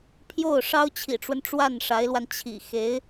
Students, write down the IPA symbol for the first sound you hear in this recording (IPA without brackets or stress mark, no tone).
pʰ